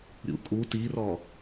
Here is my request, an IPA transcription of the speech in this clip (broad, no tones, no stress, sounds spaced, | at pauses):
ɾʲ ṵ kʼ u t i r ɔ